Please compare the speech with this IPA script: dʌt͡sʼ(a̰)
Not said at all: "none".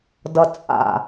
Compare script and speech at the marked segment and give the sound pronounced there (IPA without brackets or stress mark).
a̰